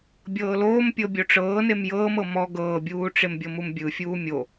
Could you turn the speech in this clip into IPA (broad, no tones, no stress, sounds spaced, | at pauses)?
bʲ ɤː l oː m pʲ ɤ bʲ o ʈ͡ʂ ɤː n e m j ɤː m ɤ m ɔ ɡ ɤː bʲ uː ʈ͡ʂ e m bʲ ɤ m u m bʲ ɯ fʲ uː mʲ o